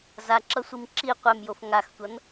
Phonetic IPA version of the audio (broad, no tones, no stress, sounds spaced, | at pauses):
z a ǁ ʌ sʷ i m ǁ i qʷ ɛ m j o f ŋ a x tʷ ʌ n